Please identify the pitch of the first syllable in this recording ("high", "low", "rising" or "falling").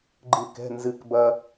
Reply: falling